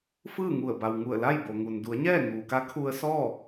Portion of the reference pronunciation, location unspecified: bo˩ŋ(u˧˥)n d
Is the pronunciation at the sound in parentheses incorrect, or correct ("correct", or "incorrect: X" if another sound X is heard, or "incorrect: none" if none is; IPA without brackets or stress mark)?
incorrect: u˩